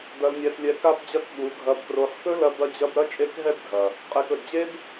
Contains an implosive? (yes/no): yes